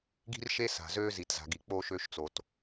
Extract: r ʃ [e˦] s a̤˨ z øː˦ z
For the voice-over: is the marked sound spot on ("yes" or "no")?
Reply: yes